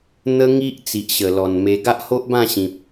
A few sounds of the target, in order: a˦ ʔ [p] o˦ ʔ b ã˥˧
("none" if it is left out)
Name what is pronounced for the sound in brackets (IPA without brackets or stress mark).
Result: h